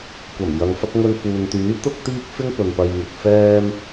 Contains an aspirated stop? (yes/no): no